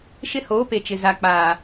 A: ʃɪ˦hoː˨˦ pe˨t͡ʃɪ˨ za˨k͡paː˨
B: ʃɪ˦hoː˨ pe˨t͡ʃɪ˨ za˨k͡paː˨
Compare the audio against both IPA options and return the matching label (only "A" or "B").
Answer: A